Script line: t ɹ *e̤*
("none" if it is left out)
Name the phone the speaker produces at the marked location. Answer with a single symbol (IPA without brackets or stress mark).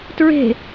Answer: e̤